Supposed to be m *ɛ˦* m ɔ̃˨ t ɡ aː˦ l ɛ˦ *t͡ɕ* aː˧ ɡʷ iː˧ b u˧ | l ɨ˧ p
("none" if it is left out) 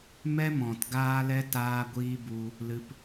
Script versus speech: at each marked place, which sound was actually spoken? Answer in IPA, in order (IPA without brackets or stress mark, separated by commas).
ɛ˦, t